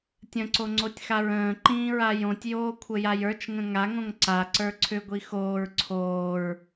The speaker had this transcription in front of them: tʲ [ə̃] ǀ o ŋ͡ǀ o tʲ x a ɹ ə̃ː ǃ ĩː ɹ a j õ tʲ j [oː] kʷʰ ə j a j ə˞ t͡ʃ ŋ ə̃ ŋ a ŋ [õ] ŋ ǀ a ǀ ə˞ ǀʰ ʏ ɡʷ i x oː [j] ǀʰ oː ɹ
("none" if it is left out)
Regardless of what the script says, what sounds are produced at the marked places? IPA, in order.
ə̃, oː, õ, ɹ

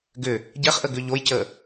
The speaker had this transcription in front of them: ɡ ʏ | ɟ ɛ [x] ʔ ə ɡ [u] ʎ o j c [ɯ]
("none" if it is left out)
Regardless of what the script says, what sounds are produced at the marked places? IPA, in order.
χ, ʏ, ə

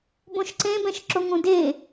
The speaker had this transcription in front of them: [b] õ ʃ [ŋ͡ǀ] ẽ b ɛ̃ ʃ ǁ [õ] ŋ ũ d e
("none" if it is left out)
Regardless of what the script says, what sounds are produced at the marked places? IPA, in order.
b, ǀ, o

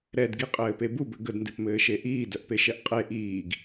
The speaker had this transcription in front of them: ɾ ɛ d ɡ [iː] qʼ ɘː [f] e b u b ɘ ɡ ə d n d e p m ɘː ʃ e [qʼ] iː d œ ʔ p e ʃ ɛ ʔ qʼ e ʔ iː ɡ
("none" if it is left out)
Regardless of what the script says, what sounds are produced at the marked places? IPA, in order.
i, p, ʔ

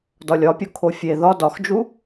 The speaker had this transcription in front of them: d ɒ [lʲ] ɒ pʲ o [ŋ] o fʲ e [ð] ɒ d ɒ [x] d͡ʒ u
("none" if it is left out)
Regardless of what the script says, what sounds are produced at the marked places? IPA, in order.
lʲ, kʰ, ð, x

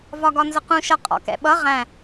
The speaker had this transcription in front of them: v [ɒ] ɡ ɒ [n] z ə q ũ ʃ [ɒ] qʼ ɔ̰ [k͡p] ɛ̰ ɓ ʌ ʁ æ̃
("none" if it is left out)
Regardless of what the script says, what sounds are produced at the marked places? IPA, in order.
ɒ, n, ʌ, k

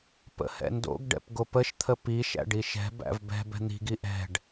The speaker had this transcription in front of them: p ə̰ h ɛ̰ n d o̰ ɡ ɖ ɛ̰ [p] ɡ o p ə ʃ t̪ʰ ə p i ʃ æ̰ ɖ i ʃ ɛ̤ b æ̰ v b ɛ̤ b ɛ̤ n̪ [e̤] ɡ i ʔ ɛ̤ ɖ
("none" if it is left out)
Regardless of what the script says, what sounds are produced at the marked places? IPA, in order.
p, i̤

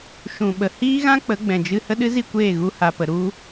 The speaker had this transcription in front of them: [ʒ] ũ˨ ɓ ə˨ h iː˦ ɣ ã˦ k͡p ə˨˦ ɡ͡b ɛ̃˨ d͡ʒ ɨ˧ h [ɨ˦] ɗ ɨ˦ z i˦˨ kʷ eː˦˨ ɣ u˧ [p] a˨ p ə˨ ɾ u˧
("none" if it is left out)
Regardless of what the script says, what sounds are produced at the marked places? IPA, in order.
ʃ, ə˦, h

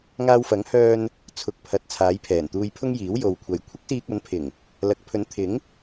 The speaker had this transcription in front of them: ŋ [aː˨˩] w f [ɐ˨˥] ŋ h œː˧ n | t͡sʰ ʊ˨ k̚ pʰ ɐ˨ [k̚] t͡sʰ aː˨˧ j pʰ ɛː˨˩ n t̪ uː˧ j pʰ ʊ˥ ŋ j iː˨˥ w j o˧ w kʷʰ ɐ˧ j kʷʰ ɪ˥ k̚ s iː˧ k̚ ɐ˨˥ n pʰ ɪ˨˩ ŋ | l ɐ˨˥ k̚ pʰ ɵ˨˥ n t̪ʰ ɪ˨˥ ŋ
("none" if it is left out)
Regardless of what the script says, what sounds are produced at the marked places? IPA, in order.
aː˧, ɐ˨˥, t̚

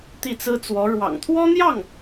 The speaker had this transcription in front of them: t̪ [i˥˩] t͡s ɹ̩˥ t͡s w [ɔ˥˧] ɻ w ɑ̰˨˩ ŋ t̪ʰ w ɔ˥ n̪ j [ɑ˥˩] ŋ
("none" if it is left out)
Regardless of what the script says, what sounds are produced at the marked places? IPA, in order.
i˥˩, ɔ˧˥, ɑ˥˩

